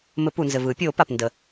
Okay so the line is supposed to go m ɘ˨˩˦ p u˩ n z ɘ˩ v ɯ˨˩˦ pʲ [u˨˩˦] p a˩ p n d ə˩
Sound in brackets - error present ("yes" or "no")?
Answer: yes